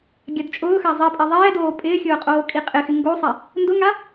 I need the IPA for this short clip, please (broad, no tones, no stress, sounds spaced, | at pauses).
ɡʲ a d t͡ʃʼ ʊː x a zˤ i pʼ e ðˤ ɛː d oː pʼ ɪː xʲ ʊː qʼ oː kʼ i qʼ ɪ x ɪ ŋ ɡ o sˤ ɛ | n d ʊ ŋ a